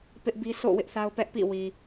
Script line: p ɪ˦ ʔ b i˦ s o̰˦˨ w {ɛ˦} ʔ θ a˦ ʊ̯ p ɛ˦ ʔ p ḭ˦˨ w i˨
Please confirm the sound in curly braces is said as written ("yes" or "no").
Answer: no